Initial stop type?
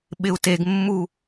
implosive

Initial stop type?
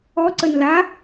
click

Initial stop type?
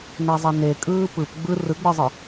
ejective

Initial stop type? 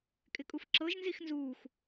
ejective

